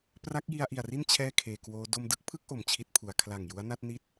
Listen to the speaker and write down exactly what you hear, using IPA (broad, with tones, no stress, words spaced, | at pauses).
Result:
pra˦˥k̚ji˧a̯ʔi˨˩a̯ri˥˩n t͡ɕʰɛː˥˩kʰeː˧kwoː˦˥ do˧mdɯ˦˥k̚pʰɯ˦˥k̚ ʔo˨˩mt͡ɕʰi˦˥t̚pʰu˩˦a̯ kʰla˨˩ŋ ju˦˥a̯na˦˥t̚ni˥˩t̚